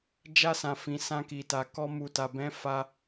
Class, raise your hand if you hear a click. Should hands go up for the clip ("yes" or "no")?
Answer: no